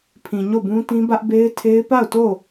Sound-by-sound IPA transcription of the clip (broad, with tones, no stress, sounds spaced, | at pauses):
pʰ ĩ˨ ɲ o˦˨ b ũ˦ t ĩ˦ b ä˦ ʔ b e˦ ɪ̯ tʰ e˦ ɪ̯ p a˦˨ ʊ̯ t o˦˨